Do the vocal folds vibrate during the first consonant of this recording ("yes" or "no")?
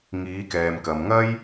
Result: yes